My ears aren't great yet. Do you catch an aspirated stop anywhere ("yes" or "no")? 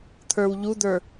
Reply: yes